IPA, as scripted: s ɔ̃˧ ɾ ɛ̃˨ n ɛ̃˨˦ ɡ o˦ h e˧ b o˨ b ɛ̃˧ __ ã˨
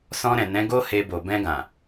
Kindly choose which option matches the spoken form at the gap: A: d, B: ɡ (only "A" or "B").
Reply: B